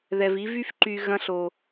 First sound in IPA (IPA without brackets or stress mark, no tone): ð